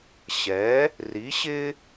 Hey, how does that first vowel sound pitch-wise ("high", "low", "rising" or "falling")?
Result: rising